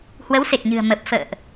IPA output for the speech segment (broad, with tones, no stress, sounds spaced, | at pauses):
h w ə˨˦ w s e˨˩ k̚ ɲ ɨ̤˨˩ ə̯ m ə˨˩ p̚ f ə̰ː˧˨ ʔ